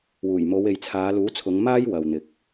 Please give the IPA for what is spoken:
w uː˨˩ j m o˨˧ w e˨ j t͡sʰ aː˨˧ l uː˨˥ t͡sʰ ʊ˨˧ ŋ m aː˥ j w ɐ˨ w n̪ ɪ˨ k̚

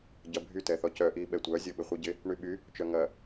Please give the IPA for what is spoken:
ɟ ɐ bʱ y t ɛ θ ɔ c œ ʔ i ɓ ɛ tʷ œ zʲ ɔ ɓ ɪ χʷ i ɟ ɪ | ɳ y ɓ y | t͡ʃ œ ŋ ɐ

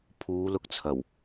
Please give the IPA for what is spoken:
pʰ uː˨˧ l ʊ˧ k̚ t͡sʰ ɐ˨˩ w

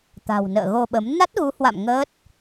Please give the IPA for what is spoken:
t̪ a̤˨˩ w n ə̰ː˧˨ ɣ o˧ ɓ ə˨˦ m n a˦˥ t̚ ɣ u˨˦ h w a̰˧˨ m ŋ əː˦˥ t̚

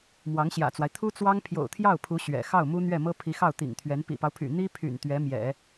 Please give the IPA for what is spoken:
m w ɑ˧˥ ŋ ɕ j ä̰˨˩ t͡s w a˦ ɪ̯ t̪ʰ u˥ t͡s w ɑ˥ ŋ pʰ j o̰˨˩ ʊ̯ t̪ʰ j ɑ˥˩ ʊ̯ pʰ u˧˥ ɕ ɥ ɛ̰˨˩ x ɑ˥˩ ʊ̯ m u˥ n̪ ɥ ɛ˥˩ m ɤ˥ pʰ i˧˥ x ɑ˥˩ ʊ̯ t̪ ḭ˨˩ ŋ t̪ʰ ɥ ɛ˧˥ n p ḭ˨˩ p ɑ˦ ʊ̯ pʰ y̰˨˩ n̪ i˥ pʰ y̰˨˩ n t̪ ɥ ɛ˧˥ m j ɛ̰˨˩˦

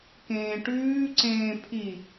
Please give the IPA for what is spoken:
k ẽː ʈ ʉː ǀ ẽː pʰ i

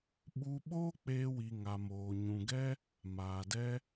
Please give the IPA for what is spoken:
ɓ u˧ ɓ oː˦ k͡p eː˧ w i˨ ŋ a˨ m oː˨ ɲ ũ˨ ɡ ɛ˦ | m aː˨ d ɛ˦

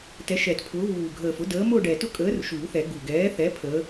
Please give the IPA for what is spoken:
t ɛ˨˥ ʃ ɛ˨˩˦ t pʰ ʊː˨˥ β uː˨˩ ɡʱ əː˨˩ f ʊ˨˥ d əː˨˥ m ʊː˥˧ ɖ ɛ˨˩ t ʊ˥˧ kʼ əː˨˥ r ʃ uː˨˩˦ θ ɛ˨˩˦ ɡ u˨˩ ɡ ɛː˨˥ θ ɛ˨˥ pʰ əː˨˥

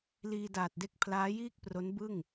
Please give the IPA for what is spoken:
l iː˧ d aː˨˩ t̚ d e˦˥ k̚ pʰ l aː˦˥ j iː˥˩ k̚ p r o˦˥ n b ɯ˥˩ ŋ

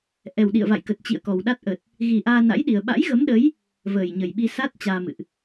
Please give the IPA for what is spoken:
ʔ ɛ˨˩ w ɗ ḭ˧˨ ə̯ v a̰˧˨ j k ə˨˩ t̚ t͡ɕ ḭ˧˨ ə̯ k ɔ˨˩ w ɗ a˦˥ t̚ ʔ ə˨˩ t̚ | ɣ i˨˩ ʔ aː˧ n a̰˧˥ j ɗ i˨˩ ə̯ ɓ a̰˧˥ j ɣ ə˨˦ m ɗ ə˨˦ j | v əː˨˩ j ɲ ə˨˩ j ɓ i˧ s a˦˥ t̚ t͡ɕ aː˧ m ɨ̰˧˨ ʔ

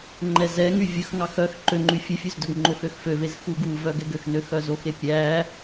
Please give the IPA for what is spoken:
ŋ͡ǃ ɛ z ɛ ŋ y vʲ ɵ x ŋ ɑ x œ x ǃ ø ŋ͡ǃ y fʲ ʉ fʲ ʉ z d ɵ ɡ ŋ͡ǃ o x ø x f ø v e z x u ɡ u v œ ɡ ɛ ɡ ø x n ø x œ z o x e pʲ æ

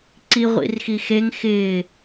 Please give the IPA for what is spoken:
ǀ i ʁʷ ḭ r x i x e ŋ x ɪː

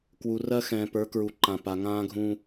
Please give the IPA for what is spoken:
k w u˨ r ɜ˦ x ɛ̃ː˨ p ə˞˨˦ k ɹ u˨ ǃ ã˨ p a˨ ŋ ãː˦ ɡʱ ũː˦

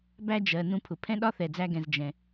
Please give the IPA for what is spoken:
b æ˥ d͡ʒ ɜ˩ n ũ˧ pʰ ʊ˩ pʰ ɛ̃˥ ɗ ɒ˥ θ ɛ˩ d͡z æ˧ ɡ ɛ̃˩ z d͡ʒ ɛ̃˩

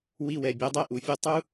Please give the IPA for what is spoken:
w i˧ w ɛ˨ bʲ o˨˦ dˤ ɛ˦ ʔ u˨ fʲ u˦ tˤ u˦

